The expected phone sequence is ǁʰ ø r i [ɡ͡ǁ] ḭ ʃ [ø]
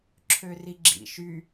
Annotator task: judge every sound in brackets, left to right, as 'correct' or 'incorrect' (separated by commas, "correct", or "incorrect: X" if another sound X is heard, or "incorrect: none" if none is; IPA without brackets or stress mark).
correct, incorrect: y